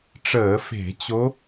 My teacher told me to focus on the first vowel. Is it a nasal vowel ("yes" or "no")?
no